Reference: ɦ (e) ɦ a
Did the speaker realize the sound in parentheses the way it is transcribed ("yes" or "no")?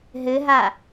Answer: no